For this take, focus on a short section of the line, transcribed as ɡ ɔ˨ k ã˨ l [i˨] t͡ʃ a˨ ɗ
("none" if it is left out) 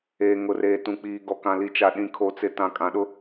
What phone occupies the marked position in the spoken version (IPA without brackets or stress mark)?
i˨